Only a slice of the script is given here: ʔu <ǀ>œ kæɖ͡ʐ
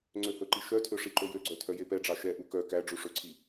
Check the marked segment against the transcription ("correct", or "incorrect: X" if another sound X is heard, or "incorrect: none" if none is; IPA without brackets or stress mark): incorrect: k